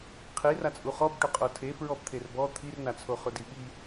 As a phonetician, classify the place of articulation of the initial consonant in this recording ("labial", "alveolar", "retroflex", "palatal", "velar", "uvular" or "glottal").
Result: uvular